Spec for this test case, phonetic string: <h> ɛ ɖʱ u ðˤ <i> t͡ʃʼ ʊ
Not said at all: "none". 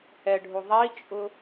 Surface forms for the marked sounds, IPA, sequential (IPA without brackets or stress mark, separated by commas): h, i